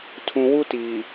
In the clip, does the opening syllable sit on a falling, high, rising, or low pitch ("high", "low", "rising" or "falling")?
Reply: low